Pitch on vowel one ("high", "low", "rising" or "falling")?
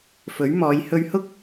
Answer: rising